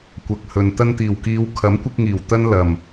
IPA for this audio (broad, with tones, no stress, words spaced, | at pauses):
kʷɐ˨k̚hɵ˨n t̪ɐ˧nt̪iː˨˩wkiː˨˧w kʰɐ˨˥mkʷɪ˧k̚ŋiː˨˩w t̪ɐ˥n lɐ˨˩m